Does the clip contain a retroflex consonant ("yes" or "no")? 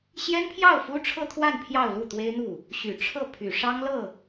yes